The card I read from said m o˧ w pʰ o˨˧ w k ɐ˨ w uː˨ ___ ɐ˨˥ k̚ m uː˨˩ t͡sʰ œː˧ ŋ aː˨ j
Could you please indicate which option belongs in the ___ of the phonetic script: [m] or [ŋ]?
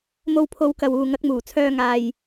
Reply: ŋ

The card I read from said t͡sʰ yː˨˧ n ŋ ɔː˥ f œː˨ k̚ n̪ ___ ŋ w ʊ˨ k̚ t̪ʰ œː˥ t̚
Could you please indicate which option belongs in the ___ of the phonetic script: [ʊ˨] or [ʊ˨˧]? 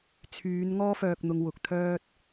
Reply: ʊ˨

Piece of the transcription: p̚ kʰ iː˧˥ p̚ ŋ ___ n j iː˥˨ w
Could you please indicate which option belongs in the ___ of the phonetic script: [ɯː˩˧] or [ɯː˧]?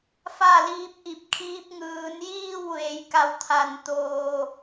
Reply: ɯː˩˧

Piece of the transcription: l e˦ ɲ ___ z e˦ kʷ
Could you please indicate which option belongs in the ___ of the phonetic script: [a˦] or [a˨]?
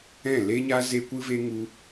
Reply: a˦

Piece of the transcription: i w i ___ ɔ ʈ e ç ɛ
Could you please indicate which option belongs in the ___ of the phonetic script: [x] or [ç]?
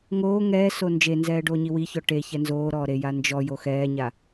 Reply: ç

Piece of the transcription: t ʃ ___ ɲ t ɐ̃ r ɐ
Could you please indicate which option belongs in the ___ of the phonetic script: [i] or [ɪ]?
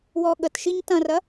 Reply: i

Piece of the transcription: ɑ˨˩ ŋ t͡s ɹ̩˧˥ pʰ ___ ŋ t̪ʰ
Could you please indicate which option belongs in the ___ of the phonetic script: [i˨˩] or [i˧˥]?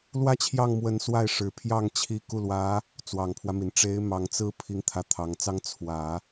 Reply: i˧˥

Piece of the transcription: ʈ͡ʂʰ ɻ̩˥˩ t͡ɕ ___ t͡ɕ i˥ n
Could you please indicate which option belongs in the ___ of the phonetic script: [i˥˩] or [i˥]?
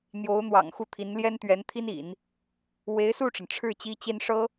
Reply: i˥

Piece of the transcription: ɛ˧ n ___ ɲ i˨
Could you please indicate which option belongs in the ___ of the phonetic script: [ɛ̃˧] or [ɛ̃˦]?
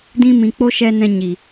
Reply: ɛ̃˧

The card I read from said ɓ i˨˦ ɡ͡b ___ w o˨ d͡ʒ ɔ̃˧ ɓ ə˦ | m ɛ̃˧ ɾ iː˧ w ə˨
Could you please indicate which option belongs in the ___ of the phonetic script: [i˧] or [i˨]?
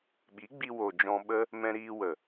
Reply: i˧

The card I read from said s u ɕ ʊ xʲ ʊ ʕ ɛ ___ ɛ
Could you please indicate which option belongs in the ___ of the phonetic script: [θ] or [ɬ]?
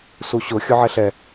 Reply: ɬ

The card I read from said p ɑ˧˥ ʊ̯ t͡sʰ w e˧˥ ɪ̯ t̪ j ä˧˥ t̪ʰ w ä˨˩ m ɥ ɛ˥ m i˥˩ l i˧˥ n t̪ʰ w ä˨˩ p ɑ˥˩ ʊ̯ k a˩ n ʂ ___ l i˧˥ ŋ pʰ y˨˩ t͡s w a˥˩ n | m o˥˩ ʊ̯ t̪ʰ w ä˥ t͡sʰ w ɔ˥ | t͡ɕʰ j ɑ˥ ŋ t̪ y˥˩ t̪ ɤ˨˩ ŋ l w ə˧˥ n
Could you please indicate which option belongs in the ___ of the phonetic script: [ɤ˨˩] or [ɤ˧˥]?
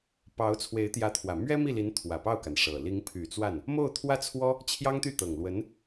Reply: ɤ˨˩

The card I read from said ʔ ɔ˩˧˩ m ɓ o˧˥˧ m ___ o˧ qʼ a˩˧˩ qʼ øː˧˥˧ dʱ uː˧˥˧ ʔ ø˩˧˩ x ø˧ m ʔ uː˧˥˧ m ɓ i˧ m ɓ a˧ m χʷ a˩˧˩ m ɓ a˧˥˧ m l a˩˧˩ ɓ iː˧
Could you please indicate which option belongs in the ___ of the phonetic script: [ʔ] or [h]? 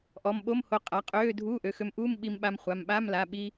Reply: h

